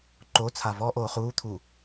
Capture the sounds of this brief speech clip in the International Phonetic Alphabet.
ǃ o t͡sʰ a v ɔ ʔ oː χ uː t̪ʰ u

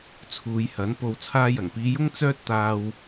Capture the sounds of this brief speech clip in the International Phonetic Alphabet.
t͡sʰ uː˨˧ j h ɐ˨˥ n p o˨ w t͡sʰ aː˧ j ɐ˨˩ ŋ p iː˨˧ j ʊ˥ ŋ t͡s œː˥ t̚ t̪ aː˧ w

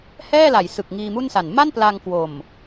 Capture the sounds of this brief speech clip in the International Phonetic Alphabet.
h ɛː˥˩ l a˩˦ j s ɯ˨˩ k̚ ŋ iː˧ m u˥˩ n s a˨˩ n m a˥˩ n p l a˧ ŋ k w o˨˩ m

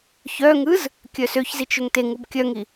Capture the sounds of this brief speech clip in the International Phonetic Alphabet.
ç œ ŋ ɯ z | kʲ œ s ø ç z i t͡ʃ ø ŋ t e ŋ u b kʲ œ ŋ i

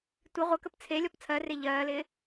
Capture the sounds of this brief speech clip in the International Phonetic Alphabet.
tʷ ɪ ʁʷ ə k ə p t͡sʰ e lʲ ɔ p t͡sʰ ɜ r e ʎ ɜː l ɪː

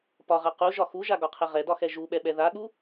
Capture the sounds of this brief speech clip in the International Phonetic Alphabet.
p ɒ ʁ a q u ʒ ɒ x u ʒ a ɡ ɒ qʰ ɛ ʁ ɛ d ɒ x ɛ ʒ u ɓ ɛ ɓ ɛ ð a ɠ u

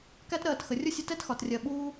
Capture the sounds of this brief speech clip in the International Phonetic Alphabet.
k æ˦ t ɾ ɜː˨ t x ə˩ rʲ ʊ˥ sʲ ə˦ t ɛ˦ t x ɒ˩ t rʲ ɜ˩ ɓ uː˦

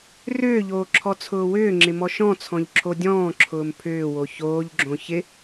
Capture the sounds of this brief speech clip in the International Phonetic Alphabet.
r ʏː ʎ oː ǁʰ ɔ t͡sʰ ʊː w ʏː ŋ͡ǁ ɪ m ɔ ʃ ɔ̃ t͡sʰ ɔ̃ ʎ ǁʰ o dʲ ɔ̃ː ǁʰ ʊː m pʰ ʏː w o ç oː ʎ ɡ͡ǁ õ ç ɪ

